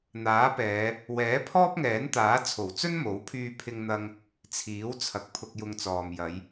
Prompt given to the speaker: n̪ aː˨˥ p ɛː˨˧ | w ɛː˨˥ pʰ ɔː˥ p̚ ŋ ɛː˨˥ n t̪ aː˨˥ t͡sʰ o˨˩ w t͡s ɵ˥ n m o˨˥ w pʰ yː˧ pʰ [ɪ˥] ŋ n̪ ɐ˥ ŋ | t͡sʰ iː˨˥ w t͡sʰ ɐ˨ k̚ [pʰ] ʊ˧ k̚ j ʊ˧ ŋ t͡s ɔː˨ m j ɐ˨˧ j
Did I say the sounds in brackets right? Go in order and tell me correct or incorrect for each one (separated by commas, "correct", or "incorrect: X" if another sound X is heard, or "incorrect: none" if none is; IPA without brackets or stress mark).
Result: correct, correct